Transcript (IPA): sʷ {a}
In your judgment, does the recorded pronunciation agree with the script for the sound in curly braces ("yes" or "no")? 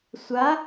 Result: yes